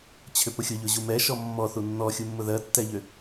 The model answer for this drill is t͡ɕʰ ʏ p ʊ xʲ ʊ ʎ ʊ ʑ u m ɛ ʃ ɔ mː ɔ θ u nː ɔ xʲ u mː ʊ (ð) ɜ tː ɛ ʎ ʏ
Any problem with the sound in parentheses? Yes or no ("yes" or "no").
no